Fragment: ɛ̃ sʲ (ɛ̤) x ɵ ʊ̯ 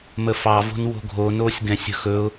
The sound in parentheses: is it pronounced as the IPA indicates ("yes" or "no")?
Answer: no